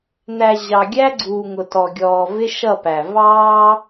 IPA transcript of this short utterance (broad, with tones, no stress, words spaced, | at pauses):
n̪æ˨ ʑɑ˨ ɡʲæ˦ɡ͡ǀuː˨ ŋʊ˨tɔ˨ɡʲɔː˨ vɪ˦ʃʌ˦˨pæ˨ vɑː˦